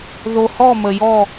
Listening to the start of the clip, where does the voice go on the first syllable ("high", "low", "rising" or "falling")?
low